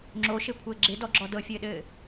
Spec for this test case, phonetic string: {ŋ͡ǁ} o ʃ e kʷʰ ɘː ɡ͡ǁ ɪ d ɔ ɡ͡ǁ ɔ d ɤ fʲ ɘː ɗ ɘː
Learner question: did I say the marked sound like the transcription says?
yes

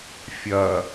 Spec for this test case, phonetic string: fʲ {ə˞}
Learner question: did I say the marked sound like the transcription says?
no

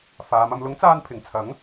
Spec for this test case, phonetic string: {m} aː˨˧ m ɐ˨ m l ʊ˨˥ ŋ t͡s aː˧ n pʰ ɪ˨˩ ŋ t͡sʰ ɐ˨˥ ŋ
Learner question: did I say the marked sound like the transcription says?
no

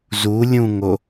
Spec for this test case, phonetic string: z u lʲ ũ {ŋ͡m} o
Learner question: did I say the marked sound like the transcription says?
no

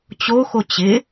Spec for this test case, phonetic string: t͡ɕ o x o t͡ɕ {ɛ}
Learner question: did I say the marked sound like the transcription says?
no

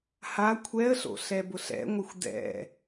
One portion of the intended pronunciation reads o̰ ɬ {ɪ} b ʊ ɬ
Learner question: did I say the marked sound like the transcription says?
no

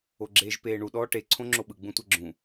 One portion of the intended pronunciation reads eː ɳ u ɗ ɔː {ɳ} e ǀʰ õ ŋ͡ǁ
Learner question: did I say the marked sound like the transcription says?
no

